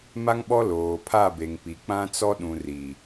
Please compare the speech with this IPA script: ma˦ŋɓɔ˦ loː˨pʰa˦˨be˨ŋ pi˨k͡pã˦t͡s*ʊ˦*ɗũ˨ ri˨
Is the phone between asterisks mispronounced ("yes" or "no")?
yes